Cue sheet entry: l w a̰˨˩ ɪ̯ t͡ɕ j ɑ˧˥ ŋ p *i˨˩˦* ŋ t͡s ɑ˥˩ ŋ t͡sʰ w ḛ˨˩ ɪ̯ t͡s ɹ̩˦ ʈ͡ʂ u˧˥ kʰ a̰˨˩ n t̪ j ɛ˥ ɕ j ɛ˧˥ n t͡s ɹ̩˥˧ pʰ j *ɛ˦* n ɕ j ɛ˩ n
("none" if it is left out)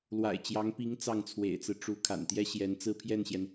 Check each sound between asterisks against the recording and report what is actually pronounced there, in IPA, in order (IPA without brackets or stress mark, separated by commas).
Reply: i˧˥, ɛ˥˩